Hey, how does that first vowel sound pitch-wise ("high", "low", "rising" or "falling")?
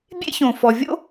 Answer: high